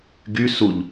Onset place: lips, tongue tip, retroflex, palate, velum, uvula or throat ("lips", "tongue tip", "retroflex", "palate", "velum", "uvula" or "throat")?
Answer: velum